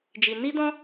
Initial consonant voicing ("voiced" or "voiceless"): voiced